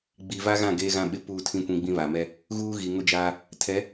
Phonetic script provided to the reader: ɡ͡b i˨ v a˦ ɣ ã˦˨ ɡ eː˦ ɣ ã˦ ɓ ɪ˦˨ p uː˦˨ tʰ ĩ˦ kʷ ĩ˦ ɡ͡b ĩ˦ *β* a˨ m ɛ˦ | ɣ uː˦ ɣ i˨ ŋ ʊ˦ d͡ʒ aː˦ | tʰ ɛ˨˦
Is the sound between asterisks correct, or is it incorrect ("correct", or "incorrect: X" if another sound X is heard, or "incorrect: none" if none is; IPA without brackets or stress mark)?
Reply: correct